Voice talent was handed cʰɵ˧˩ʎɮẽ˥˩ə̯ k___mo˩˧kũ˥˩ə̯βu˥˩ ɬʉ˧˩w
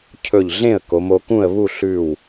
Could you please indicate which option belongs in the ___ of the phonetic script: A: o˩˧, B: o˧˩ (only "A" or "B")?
A